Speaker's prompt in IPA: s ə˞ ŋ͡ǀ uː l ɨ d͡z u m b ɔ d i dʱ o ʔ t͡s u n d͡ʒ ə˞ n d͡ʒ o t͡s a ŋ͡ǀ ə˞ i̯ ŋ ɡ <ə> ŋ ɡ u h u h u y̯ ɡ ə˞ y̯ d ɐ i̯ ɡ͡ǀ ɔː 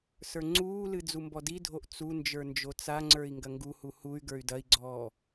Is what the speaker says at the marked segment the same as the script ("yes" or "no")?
no